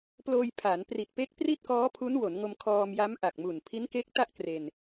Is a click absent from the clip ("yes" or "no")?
yes